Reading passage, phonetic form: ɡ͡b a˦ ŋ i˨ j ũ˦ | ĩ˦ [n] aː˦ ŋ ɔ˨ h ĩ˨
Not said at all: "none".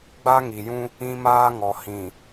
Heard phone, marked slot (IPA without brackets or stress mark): m